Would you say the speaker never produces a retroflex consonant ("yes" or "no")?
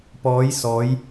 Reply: yes